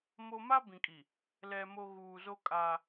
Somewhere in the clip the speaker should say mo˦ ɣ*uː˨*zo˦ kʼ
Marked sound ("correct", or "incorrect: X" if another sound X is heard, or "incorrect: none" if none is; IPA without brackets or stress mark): correct